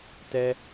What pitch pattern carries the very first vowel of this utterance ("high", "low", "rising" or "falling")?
high